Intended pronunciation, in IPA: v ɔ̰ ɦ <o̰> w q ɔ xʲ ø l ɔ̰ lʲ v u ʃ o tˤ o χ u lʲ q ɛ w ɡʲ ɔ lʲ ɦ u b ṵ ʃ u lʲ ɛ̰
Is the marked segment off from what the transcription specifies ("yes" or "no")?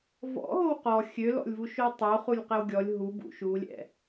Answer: yes